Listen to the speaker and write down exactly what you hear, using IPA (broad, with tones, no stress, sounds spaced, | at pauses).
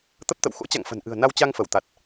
t̪ ə˦˥ p̚ t̪ ə̰˧˨ w x o̰˧˥ t͡ɕ a̰˧˨ ŋ f ə̤˨˩ n ʔ ɨ̤˨˩ ə̯ n a˧ w t͡ɕ a˧ ŋ f ə˧˩ w t̪ a˨˩ t̚